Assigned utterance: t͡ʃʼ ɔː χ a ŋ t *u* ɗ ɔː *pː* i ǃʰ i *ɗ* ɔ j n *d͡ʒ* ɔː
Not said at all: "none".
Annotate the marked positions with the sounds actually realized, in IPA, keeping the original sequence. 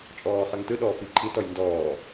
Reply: ɯ, f, t, d

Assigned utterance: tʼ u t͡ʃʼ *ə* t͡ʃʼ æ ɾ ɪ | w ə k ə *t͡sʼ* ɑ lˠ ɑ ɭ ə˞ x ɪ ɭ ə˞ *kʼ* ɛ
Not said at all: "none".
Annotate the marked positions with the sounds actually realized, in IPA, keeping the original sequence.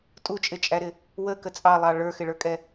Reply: ɪ, t͡sʼ, kʼ

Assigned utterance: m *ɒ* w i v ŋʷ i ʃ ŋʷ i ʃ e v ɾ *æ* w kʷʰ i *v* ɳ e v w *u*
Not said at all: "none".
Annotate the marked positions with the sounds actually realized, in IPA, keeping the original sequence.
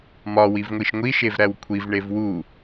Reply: ɒ, æ, v, u

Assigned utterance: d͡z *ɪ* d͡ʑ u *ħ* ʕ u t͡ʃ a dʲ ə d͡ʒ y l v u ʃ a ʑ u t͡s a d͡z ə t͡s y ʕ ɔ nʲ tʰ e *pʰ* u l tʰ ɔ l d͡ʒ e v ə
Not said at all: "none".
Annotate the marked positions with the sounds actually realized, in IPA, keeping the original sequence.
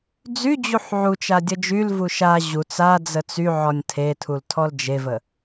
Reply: y, ħ, tʰ

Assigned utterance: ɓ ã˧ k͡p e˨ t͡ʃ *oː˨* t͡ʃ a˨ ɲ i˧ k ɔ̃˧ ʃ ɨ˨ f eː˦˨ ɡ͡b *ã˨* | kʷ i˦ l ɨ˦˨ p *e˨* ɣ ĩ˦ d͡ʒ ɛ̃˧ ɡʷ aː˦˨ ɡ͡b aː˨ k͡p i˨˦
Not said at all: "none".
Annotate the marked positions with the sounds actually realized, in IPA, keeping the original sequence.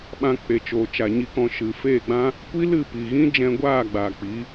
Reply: oː˨, ã˦, i˨

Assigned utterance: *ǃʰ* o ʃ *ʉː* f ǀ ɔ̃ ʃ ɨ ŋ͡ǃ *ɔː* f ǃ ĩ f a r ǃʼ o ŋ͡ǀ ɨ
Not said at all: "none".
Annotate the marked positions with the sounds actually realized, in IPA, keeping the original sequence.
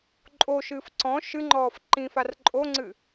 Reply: ǃʼ, ɨː, ɔː

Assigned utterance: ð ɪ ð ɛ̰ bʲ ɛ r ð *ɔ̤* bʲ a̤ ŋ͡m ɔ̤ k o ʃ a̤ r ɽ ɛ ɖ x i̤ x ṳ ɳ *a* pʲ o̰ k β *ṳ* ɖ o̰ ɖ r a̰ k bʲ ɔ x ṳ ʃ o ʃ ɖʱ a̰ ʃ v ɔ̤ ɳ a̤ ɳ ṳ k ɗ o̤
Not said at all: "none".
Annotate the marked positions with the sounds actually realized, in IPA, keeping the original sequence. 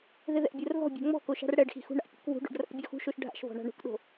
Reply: ɔ̤, a̰, ṳ

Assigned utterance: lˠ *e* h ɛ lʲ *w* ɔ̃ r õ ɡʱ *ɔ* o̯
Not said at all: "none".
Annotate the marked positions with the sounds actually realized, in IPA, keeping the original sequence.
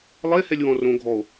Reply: e, w, ɔ

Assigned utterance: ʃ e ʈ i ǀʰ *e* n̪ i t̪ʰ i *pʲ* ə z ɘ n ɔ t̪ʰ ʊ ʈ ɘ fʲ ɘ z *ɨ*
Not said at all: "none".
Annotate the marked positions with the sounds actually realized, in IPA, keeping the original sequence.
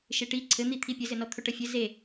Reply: ɘ, pʲ, e

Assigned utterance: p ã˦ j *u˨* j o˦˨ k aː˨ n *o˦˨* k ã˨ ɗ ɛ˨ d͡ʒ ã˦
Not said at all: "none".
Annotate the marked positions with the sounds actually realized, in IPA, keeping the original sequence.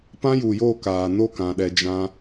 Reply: u˨, o˦˨

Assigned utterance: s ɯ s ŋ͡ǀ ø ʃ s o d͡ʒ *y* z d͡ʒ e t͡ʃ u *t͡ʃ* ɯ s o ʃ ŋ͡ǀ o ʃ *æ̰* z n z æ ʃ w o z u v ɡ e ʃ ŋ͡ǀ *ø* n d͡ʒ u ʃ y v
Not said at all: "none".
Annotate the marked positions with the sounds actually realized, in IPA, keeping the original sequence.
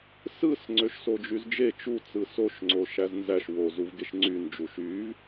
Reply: y, t͡s, æ, y

